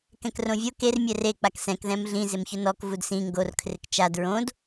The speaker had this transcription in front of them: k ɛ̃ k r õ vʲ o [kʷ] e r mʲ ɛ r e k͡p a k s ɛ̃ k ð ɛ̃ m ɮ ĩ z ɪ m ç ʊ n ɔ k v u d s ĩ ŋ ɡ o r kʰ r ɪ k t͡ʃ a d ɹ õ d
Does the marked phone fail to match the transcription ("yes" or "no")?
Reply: yes